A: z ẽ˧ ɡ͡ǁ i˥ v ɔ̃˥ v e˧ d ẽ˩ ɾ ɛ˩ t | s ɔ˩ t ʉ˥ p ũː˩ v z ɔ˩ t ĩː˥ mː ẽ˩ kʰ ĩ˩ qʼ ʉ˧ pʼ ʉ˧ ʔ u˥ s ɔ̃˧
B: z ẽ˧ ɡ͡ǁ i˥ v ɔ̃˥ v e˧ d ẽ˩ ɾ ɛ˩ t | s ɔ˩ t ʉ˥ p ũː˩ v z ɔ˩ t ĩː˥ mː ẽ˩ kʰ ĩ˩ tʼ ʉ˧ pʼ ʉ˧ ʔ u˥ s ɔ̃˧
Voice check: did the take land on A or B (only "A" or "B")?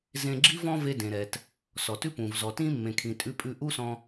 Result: B